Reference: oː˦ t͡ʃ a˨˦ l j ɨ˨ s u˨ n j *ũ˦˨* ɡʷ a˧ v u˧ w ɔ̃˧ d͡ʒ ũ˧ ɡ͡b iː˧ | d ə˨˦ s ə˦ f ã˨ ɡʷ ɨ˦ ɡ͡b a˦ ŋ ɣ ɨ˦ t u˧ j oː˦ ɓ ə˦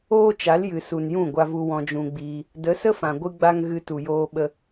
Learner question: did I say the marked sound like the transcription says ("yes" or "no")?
yes